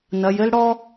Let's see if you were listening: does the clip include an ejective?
no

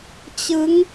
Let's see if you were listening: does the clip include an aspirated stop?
no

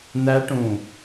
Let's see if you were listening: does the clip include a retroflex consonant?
yes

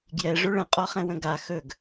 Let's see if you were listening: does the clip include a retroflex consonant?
yes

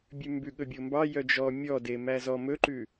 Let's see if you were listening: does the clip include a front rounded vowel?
yes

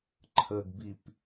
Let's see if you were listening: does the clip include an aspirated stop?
yes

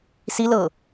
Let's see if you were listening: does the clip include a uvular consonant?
no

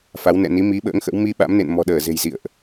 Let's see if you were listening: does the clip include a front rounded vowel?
no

